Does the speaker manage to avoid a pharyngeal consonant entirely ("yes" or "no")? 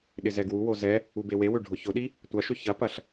yes